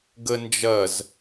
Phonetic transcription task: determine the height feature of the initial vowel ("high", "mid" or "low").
mid